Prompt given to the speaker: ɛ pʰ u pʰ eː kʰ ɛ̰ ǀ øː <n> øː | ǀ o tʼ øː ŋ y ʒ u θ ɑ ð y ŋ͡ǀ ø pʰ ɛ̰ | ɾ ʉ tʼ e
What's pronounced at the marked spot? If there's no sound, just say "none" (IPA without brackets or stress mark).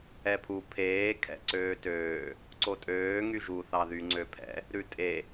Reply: t